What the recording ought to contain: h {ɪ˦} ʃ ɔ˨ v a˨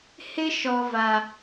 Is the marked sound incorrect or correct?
correct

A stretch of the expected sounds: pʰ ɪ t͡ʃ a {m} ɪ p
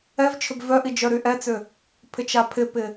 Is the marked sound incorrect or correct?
incorrect: pʰ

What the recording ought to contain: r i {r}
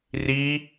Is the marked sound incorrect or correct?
incorrect: none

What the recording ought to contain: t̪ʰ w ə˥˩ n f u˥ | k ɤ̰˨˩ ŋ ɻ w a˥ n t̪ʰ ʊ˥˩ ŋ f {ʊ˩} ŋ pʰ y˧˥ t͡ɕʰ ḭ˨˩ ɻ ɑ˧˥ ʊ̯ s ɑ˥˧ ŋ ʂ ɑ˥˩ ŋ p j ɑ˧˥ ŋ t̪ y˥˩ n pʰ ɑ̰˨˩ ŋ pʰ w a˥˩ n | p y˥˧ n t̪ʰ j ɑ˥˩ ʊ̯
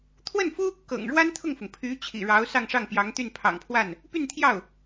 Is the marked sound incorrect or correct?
correct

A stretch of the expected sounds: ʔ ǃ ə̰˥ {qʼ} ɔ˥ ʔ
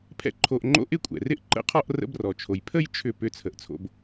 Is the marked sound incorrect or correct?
incorrect: qʰ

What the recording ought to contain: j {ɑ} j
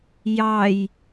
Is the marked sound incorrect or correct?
correct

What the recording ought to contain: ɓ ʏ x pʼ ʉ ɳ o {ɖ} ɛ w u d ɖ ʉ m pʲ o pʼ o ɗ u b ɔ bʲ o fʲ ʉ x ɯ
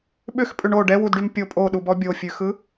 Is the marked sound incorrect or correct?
correct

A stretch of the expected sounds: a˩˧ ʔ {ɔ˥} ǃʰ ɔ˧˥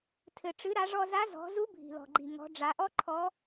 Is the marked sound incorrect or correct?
correct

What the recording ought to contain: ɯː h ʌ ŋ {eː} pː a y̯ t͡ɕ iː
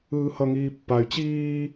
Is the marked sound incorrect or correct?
incorrect: iː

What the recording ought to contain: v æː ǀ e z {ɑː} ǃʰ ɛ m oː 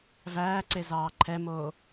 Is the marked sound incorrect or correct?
correct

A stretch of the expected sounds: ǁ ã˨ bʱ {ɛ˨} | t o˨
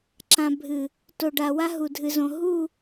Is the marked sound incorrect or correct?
incorrect: ɨ˨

